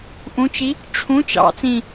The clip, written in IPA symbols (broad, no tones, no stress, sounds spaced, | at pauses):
ʔ ũ t͡ʃ i | ʈ͡ʂʰ ũ t͡ʃ ɑ̰ t͡s ĩ